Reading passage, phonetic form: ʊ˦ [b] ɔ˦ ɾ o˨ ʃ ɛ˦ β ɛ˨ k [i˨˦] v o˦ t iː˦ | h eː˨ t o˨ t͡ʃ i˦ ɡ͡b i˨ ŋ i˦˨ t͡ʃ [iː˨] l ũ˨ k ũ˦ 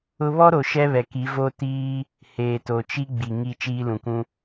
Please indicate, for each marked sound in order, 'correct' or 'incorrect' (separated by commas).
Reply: incorrect, correct, incorrect